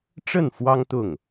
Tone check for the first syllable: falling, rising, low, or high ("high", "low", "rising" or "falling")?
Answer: falling